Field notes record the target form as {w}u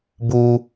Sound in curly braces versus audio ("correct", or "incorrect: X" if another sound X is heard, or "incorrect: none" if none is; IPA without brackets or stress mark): incorrect: b